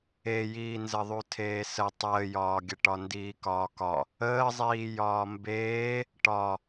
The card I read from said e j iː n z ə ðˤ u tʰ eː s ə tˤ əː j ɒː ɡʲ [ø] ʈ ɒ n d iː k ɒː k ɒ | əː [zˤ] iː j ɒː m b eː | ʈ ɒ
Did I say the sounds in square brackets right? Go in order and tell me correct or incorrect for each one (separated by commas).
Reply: incorrect, correct